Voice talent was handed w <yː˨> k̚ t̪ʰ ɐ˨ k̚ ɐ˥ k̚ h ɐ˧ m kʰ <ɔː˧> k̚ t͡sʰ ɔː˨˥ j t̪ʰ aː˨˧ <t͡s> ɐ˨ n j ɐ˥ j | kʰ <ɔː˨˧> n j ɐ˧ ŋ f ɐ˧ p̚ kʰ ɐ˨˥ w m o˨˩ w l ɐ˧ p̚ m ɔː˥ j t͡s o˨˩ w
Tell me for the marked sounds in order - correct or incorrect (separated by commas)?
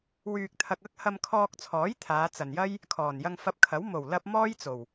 correct, correct, correct, incorrect